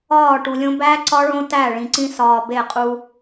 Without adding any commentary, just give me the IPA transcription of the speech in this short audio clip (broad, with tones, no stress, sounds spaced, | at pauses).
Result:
ɒː˦˨ ʈ u˨ lʲ õ˦ b æ˦ ǀ ɒ˦ ɭ õ˦ t æ˦˨ ɭ ĩ˨ ǀ ĩ˦ s ɒː˨ b e˦˨ qʼ u˦